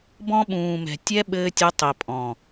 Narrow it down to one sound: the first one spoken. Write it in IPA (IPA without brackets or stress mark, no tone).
b